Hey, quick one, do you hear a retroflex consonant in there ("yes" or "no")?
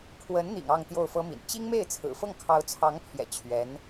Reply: no